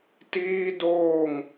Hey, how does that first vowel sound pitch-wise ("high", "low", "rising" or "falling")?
high